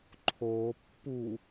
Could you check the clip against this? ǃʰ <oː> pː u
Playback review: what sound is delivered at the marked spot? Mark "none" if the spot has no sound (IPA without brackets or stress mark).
oː